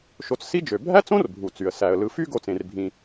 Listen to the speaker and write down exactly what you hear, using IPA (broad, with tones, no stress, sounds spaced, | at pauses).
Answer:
ʃ o˨ t͡s s i˦ d͡ʒ ø˩ bʱ æ˥ t͡s õ˥ r bʱ u˩ t͡s y˩ ə̯ s æ˩ ə̯ l ɯ˨ f y˥ ɡ o˨ t͡s ẽ˩ r bʱ ĩ˨